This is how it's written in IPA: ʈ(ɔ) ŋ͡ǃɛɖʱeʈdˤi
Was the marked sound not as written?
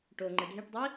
yes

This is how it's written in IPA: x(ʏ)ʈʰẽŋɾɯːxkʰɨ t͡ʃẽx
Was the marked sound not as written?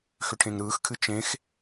no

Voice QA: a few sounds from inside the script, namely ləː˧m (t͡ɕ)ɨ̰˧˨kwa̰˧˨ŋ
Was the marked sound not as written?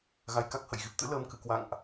yes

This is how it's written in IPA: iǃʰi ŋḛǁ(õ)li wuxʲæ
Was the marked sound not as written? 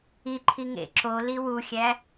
yes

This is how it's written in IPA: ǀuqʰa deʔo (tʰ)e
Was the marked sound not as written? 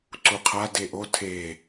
no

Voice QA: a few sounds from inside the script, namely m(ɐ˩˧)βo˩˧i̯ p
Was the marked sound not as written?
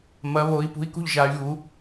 no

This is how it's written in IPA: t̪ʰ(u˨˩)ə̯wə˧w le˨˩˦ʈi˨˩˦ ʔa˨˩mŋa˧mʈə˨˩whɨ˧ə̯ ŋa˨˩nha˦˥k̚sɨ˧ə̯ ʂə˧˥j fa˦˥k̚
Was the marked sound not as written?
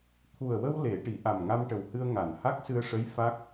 no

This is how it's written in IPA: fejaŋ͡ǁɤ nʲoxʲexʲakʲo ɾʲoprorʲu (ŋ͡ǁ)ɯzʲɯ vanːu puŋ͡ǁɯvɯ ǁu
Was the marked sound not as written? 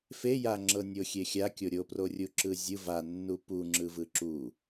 yes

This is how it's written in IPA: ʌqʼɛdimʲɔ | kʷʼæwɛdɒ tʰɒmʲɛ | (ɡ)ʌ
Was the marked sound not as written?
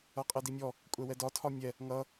yes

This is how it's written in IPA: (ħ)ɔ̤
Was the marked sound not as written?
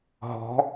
yes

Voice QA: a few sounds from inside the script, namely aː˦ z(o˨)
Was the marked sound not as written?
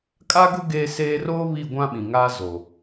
no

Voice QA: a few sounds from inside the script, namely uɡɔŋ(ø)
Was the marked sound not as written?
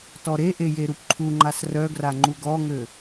no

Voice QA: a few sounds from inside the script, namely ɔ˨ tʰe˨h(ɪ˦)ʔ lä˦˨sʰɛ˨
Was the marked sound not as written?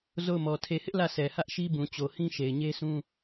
no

